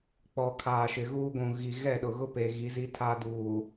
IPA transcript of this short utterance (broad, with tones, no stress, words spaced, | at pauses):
k͡pɔ˨ kʰaː˨ʃɪ˨ ɣuː˦ɡʷũ˨ ɣi˨ ɣɛ˦˨ɗʊ˨ɣʊ˦ pe˨ ɣi˨˦zi˦tʰa˦duː˨